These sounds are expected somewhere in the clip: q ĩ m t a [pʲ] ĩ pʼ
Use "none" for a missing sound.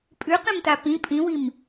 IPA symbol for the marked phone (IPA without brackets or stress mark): p